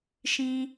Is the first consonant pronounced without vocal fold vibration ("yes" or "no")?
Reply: yes